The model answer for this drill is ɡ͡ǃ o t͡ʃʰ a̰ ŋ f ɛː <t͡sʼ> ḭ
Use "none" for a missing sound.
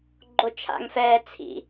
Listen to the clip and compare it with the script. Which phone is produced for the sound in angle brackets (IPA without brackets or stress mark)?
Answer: t͡sʰ